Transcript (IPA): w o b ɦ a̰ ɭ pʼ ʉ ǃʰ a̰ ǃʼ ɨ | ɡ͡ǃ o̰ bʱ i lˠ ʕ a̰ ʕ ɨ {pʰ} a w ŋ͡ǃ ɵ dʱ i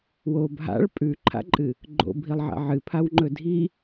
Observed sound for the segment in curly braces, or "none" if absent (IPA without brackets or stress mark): pʰ